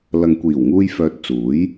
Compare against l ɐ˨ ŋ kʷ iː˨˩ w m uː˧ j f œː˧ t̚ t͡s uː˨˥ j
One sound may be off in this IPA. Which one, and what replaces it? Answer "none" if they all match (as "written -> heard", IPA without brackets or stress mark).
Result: m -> ŋ